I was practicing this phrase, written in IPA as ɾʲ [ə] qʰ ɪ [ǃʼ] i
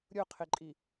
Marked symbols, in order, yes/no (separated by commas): no, yes